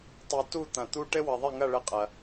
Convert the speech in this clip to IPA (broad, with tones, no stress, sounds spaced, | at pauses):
tˤ i˧ t u˥˧ t̪ ɐ̃˧˩ t̪ u˥ ʈ ɘ˥ w ɐ˧ ðˤ ɪ˥˧ ŋ ɐ˥˧ ɭ ə˥˧ qʼ ɐ˧